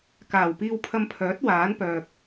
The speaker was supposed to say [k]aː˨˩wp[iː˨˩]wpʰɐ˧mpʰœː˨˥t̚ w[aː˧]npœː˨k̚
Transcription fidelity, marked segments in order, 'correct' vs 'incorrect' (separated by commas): correct, incorrect, incorrect